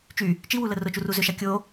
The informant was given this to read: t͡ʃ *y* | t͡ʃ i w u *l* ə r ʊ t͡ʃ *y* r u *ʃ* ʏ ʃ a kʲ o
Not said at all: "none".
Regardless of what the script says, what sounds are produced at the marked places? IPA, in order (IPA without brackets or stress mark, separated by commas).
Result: y, l, u, z